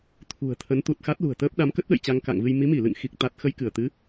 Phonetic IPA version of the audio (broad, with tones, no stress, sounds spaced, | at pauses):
t̪ʰ ṳ˨˩ ə̯ t̪ʰ ə˨˦ n t̪ u˨˩ t̚ x a˦˥ t̚ l ṳ˨˩ ə̯ t̪ əː˦˥ p̚ ɗ a˨˦ m k ə˦˥ t̚ ɗ ə̰˧˨ j t͡ɕ a˧ ŋ k a̰˧˨ ŋ v ɨ˧ j m i˨˦ m i˧˩ l ɨ̰˧˨ ŋ x i˦˥ k̚ t̪ a˦˥ t̚ x ə˧ j k ɨ˧˩ ə̯ t̪ ɨ˨˦